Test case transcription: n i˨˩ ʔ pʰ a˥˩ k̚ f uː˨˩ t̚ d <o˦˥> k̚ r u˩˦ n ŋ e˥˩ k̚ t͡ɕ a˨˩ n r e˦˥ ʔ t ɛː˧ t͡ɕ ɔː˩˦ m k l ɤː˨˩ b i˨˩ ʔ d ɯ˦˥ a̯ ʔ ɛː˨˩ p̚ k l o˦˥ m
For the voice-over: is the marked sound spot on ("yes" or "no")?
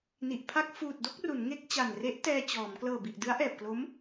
no